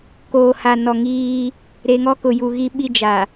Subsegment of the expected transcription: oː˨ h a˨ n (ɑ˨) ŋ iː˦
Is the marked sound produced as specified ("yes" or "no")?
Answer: no